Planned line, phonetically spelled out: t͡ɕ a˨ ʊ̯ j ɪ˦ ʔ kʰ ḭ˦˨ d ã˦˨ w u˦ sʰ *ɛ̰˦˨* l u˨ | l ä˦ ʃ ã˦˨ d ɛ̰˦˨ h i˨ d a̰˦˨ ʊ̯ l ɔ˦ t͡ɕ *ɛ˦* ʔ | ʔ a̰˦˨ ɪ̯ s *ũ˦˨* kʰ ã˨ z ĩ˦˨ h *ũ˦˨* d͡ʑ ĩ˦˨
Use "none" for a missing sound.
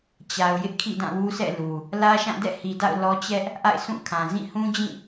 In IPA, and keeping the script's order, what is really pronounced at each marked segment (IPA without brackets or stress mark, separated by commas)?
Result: ɛ̰˦˨, ɛ˦, ũ˦˨, ũ˦